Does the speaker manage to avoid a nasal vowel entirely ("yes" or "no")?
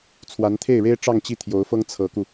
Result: yes